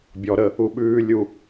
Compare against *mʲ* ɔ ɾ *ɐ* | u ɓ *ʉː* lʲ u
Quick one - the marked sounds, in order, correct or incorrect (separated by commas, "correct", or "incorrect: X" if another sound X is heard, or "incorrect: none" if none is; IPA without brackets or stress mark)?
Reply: incorrect: bʲ, incorrect: ə, correct